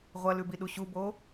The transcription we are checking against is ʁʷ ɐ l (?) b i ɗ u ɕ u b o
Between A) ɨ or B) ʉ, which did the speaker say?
B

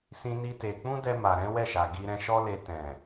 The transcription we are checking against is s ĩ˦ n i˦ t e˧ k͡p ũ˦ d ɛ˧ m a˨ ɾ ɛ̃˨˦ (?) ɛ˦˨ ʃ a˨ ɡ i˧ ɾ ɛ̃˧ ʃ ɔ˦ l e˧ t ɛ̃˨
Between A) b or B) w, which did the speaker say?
B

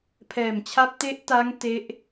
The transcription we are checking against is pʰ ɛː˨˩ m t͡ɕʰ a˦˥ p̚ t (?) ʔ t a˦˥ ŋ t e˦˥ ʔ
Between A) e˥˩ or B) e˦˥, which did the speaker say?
B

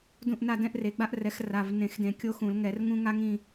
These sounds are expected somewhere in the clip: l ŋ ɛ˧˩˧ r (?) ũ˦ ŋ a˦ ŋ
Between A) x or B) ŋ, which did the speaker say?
B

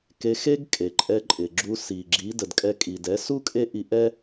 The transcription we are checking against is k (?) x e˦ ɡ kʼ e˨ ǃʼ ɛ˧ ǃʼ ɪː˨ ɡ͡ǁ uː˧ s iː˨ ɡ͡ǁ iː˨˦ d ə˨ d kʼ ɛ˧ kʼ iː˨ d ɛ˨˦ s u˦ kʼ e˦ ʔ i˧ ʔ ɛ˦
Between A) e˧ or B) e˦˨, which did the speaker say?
A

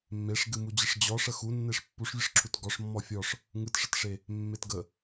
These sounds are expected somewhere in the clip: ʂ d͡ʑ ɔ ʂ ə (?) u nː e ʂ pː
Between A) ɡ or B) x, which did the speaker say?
B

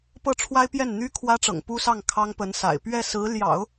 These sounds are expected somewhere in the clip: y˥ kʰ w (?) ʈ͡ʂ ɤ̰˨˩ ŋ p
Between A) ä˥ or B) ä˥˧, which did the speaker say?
A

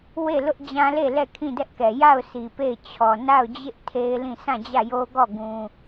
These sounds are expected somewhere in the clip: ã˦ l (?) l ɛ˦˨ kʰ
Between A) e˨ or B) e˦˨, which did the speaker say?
B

